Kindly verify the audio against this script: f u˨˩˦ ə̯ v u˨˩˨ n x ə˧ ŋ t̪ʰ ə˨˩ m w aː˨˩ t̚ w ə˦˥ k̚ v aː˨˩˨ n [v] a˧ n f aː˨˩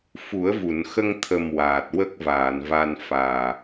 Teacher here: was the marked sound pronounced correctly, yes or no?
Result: yes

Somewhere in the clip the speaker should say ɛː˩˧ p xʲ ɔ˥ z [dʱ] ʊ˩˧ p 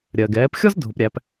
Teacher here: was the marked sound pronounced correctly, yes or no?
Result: yes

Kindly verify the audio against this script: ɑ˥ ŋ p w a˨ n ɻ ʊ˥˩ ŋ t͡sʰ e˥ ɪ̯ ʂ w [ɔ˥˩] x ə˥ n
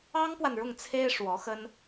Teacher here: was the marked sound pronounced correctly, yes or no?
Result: no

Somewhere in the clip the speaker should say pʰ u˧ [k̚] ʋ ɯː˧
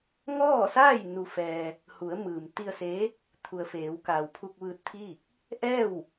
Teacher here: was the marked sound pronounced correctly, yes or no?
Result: yes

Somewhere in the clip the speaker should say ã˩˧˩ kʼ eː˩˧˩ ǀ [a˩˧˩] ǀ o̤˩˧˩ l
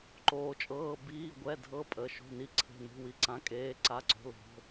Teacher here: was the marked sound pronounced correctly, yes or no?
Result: yes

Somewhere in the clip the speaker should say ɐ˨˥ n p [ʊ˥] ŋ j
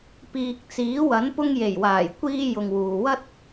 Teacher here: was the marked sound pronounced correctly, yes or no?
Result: no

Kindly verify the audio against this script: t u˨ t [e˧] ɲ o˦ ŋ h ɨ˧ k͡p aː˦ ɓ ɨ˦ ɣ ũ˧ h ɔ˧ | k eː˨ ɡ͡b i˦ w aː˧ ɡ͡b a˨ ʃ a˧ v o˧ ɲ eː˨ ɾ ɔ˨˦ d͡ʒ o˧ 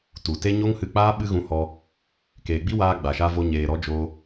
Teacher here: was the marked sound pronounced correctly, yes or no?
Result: no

